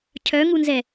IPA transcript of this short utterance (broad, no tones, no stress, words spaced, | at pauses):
cʰœŋunzɛ